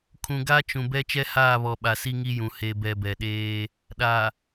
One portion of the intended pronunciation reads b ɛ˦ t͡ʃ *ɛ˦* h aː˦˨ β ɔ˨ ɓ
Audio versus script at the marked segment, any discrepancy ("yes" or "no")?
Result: no